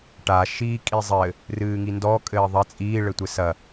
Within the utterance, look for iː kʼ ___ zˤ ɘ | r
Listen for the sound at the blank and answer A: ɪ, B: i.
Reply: B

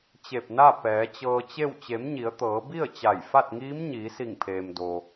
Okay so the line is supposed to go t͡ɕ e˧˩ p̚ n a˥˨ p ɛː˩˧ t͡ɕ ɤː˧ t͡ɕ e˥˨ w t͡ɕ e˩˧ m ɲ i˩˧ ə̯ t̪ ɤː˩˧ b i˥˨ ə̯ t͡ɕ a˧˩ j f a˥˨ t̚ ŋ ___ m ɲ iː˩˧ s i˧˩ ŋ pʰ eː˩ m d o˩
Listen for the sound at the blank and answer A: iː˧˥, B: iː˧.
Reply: A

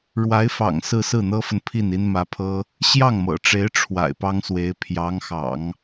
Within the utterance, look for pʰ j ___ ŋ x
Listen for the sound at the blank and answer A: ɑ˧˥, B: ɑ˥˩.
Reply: A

